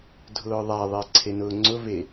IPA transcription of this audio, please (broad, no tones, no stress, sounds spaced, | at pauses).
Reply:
dʱ ʊː ðˤ a ðˤ ɪː ǀʰ e n ʊː ŋ͡ǀ ʊ v e